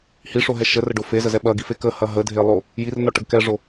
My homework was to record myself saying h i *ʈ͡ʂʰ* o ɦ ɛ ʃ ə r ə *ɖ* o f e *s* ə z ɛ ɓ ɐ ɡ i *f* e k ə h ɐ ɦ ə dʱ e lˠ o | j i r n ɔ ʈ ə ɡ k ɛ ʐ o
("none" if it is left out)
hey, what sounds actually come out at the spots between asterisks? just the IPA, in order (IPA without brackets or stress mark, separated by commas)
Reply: ʂ, ɖ, z, f